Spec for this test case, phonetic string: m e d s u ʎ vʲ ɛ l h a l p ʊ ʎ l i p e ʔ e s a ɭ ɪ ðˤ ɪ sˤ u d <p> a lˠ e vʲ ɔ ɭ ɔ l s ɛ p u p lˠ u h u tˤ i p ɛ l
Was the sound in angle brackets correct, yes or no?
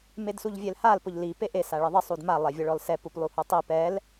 no